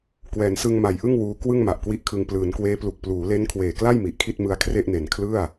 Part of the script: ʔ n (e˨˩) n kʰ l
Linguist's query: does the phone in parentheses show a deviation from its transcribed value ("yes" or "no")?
no